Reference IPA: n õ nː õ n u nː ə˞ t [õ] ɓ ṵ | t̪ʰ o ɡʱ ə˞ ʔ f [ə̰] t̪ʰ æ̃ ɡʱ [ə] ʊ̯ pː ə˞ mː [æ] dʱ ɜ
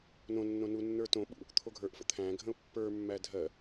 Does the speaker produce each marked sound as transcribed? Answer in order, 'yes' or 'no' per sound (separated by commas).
yes, yes, no, yes